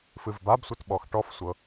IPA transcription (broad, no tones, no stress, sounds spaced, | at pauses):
f ɨ v b a b sʷ ɤ t ɓ ɔ x ʈ ɔ f sʷ ɤ